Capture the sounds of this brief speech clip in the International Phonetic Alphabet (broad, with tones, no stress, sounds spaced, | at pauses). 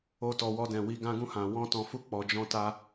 o˧ t ɔ˨ w ɔ˧ d ɛ̃˨ w i˧ ɡ ã˦ ɡ ũ˦˨ h ã˨ w ɔ̃˧ t ɔ̃˨ f u˧ k͡p ɔ˨ d͡ʒ ɔ̃˧ t a˧